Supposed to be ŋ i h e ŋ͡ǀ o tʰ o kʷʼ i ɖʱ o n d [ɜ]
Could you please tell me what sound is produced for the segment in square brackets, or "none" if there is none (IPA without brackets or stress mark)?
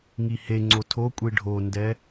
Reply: ɛ